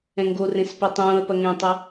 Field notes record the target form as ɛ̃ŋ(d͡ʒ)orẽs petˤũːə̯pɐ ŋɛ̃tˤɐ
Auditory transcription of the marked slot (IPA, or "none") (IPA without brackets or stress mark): ɡ